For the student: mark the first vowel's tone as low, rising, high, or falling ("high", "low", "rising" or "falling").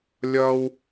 high